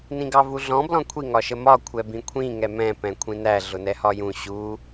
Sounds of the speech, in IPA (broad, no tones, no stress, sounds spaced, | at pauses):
n ĩ ɡ ɑ v u ɮ ɔ̃ b l ɔ̃ kʷʰ i ŋ ɒ ʃ ə m ɒ kʷʰ ɛ b ĩ kʷʰ ĩ ŋ ɛ m ɛ̃ p ɛ̃ kʷʰ ĩ n æ ɮ ʊ n ɛ h ɒ j ũ ɕ u